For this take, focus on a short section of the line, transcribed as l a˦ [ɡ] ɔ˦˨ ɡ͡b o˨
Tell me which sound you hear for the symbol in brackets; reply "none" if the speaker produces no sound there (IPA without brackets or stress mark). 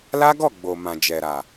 ɡ